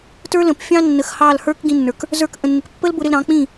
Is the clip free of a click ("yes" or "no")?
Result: yes